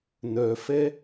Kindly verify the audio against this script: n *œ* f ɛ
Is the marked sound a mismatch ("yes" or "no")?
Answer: no